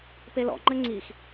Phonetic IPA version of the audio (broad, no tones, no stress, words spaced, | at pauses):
pelɔ̰ŋ͡ǃɘ ŋ͡ǀix